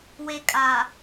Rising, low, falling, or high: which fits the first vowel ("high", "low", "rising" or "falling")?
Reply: low